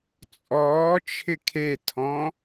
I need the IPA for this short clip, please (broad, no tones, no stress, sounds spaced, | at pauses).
t͡sʼ ɔː t͡ʃʰ ɪ kʰ e tʰ ɔ̃